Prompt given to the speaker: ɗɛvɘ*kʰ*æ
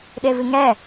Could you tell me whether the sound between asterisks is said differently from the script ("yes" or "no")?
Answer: yes